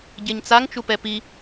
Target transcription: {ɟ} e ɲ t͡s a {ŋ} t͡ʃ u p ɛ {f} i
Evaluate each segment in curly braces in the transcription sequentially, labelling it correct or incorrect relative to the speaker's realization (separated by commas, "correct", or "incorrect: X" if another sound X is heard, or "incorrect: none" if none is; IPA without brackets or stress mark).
correct, correct, incorrect: p